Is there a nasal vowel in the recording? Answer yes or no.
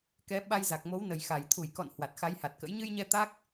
no